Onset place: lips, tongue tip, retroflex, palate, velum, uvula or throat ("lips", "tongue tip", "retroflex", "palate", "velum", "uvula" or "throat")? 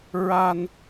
tongue tip